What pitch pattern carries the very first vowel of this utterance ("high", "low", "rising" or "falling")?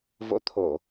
rising